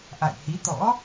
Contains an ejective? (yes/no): no